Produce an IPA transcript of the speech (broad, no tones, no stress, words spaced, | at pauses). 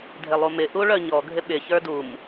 dʱɪlˠumɪ ʔuɭœɲɔ ɡʱɪɓɪ çə˞dum